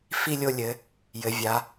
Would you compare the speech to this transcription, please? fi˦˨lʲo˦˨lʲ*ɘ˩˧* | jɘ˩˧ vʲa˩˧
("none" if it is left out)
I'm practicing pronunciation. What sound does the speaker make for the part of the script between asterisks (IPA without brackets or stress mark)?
ɘ˩˧